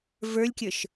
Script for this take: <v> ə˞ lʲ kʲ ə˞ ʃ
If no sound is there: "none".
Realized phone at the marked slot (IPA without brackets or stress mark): v